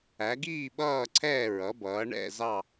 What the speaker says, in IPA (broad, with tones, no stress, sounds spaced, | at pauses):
æ˩˧ ɡ iː˦˨ ɓ ʌː˦˨ ǀʰ ɛː˦˨ ɹ ʌ˩˧ b ʌː˩˧ ɳ ɛ̰˦˨ z ɑ˦˨